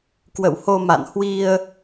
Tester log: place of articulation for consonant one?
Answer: velar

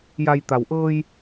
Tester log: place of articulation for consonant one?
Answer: palatal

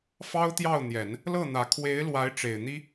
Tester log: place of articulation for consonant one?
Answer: labial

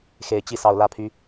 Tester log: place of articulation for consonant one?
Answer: velar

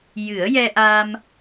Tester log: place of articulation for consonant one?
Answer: palatal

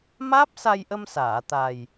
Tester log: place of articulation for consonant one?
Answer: labial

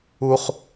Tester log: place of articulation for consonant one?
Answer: uvular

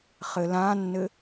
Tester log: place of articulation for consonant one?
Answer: uvular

